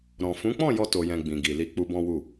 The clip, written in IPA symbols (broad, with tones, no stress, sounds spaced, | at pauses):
ɾ ɔ̃˨ f ũ˨˦ k͡p ɔ̃˦˨ j ɔ˧ t o˨ j ɛ̃˨ ɡ͡b ĩ˨ ɡ i˨ l i˧ k͡p u˧ b ɔ̃˦ w u˦˨